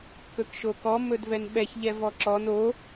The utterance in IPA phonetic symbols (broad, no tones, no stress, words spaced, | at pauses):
kɵkʃokɔ mɵdvɛnɓɛç ʎɛvɔǁɔn o